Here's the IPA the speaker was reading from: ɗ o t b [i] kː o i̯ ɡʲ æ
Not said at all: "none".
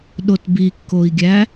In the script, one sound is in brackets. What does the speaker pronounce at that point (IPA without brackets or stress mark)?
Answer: i